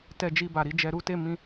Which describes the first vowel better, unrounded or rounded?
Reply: unrounded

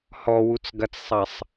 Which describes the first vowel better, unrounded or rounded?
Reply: rounded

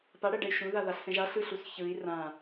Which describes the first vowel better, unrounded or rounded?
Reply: unrounded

